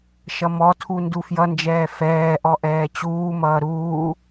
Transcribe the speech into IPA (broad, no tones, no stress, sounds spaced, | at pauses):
ʃ ʌ m ɔ tʰ u n d u f j ʌ n d͡ʒ ɛː f ɛː ʔ ɔ ʔ ɛː t͡ɕ uː m ʌː ɾ uː